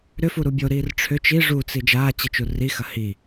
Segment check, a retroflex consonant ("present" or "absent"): present